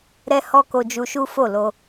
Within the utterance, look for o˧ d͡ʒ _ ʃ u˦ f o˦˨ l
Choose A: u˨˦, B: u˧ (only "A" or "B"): B